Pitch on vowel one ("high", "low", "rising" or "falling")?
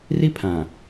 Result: high